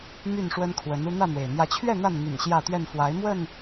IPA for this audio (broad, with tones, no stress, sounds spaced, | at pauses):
m y˥˨ n ʂ w ə˦ n kʰ w ə˨˦ n u˦ n̪ ä˥˨ n̪ w e˩ ɪ̯ n̪ j ä˨˦ t͡ɕʰ ɥ ɛ˥˨ n̪ a˥˨ n n̪ y̰˨˩ n ɕ j ä˥˨ t̪ ɥ ɛ˥˨ n f w a˨˦ ɪ̯ m w ə˥˨ n